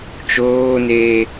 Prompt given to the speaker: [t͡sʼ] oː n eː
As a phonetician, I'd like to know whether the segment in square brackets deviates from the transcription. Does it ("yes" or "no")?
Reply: yes